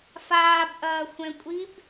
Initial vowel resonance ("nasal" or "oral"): oral